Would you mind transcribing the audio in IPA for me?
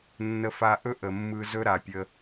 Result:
nː ə˧ f a˧ ʔ ɵ˦ ʔ ə˨ mː ɯ˧ z ɵ˦ ɾ a˨ pʲ ə˧

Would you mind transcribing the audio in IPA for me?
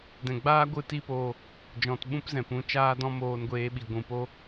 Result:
d ɛ̃˨ ɡ͡b aː˦ ɡʷ ɨ˧ t i˦ p oː˧ | d͡ʒ ɔ̃˨ t ɓ ũ˦ p z ɛ̃˨ p ũ˨˦ t͡ʃ aː˦ d ɔ̃˦ m oː˧ n ɡʷ eː˧ ɓ i˨ ɡʷ ũ˨ p o˦

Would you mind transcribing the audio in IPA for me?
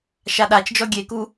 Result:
ʃ a ɗ a t͡ʃ d͡ʒ ɔ ɡʲ e k u

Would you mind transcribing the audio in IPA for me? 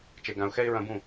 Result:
t͡ʃ e˨ ɡ ã˨ ʊ̯ x ɛ˧ ɪ̯ ɹ ɐ̃˧ b ũ˦˨

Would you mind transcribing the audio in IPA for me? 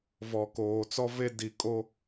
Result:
v ɔ˨ k oː˨ t͡s ɔ˦ v e˦ d i˨ kʼ o˦

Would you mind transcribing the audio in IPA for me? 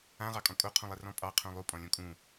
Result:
ã ʁ ɑ kʼ ɔ̃ kʼ o qʰ ũ lˠ ɛ r ɔ̃ pʼ ɑ qʰ ũ lˠ u pʼ ɔ̃ lʲ õ kʼ ũ

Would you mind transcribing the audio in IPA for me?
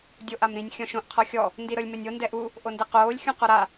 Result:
dʲ o ʔ a m ɾ ĩ nʲ xʲ ɔ̃ ʃ õ ʔ qʰ ɔ xʲ ɔ | n d i ɾ ɤ lʲ m e nʲ o n d ɛ ʔ u | ʔ o n d e q oː lʲ xʲ ũ q ɔ ɾ a

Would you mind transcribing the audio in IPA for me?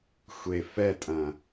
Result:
xʷ e f ɛ tʼ ɐ̃

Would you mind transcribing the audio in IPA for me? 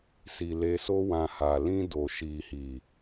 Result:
s i˨ l e˧ s o˦ w ã˧ h a˨ l ĩ˧ d o˨ ʃ i˨ h i˨

